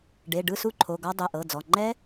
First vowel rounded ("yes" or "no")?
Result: no